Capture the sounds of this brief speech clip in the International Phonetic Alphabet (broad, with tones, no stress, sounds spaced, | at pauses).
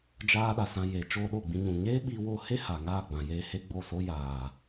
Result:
d͡ʒ aː˧ ɗ a˨ s ã˧ j eː˨ t͡ʃ oː˧ ɗ o˦˨ ɡ͡b ĩ˧ ɲ ũ˨ ɲ eː˦ ɓ i˧ w o˧ h e˦ h a˨ ŋ aː˦˨ ɡ͡b ã˨ j eː˧ h e˦ ɡ͡b o˦˨ s o˦ j aː˨